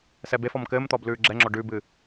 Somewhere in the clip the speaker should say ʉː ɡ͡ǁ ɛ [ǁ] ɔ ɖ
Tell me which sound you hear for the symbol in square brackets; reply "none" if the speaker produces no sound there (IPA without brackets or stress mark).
ŋ͡ǁ